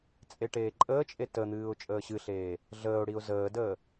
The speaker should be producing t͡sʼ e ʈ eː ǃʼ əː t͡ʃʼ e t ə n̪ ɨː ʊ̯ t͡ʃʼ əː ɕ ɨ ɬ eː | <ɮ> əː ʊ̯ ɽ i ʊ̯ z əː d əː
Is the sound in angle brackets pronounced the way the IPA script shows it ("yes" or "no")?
yes